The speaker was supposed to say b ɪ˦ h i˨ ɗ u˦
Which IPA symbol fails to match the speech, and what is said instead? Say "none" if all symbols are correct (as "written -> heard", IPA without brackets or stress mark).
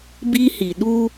ɪ˦ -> i˦